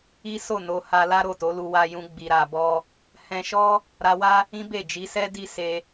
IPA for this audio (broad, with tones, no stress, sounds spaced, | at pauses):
i˦ s o˦˨ n o˧ h a˧ l a˦ ɾ o˦˨ t o˨˦ l u˧ w a˧ j ũ˧ ɡ͡b i˨ ɾ a˨ b ɔ˧ | h ɛ̃˧ ʃ ɔ˦ | ɾ a˧ w a˦ | ĩ˦ b e˦˨ d͡ʒ i˨˦ s ɛ˦ d i˦˨ s e˧